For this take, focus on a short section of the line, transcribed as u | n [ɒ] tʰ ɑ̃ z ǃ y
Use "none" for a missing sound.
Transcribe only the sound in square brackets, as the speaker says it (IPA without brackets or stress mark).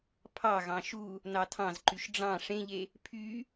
ɑ